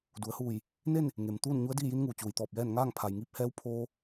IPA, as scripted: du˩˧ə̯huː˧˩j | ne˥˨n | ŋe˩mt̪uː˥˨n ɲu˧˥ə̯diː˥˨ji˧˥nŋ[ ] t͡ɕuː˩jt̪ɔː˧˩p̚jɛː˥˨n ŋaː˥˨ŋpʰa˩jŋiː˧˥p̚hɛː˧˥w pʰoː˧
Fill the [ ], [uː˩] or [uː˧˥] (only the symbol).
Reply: uː˩